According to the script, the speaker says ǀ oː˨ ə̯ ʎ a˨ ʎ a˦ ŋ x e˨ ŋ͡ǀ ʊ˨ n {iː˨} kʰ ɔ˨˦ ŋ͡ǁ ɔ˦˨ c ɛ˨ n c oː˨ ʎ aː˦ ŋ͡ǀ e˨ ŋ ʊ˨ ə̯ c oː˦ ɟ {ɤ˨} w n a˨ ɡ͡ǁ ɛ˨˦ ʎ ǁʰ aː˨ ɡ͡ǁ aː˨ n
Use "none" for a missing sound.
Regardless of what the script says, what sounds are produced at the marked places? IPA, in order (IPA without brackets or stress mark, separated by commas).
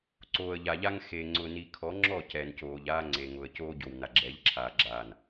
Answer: i˨, o˨